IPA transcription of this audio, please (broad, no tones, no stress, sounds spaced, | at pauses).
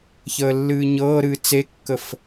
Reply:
ç əː lː ɨː ɲ ɤː ɾ ɨː t͡s e kː ə f